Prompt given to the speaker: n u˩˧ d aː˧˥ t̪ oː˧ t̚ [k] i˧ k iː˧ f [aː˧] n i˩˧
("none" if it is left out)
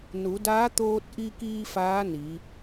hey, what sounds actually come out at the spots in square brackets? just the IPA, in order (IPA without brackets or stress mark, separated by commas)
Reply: ʔ, aː˧˥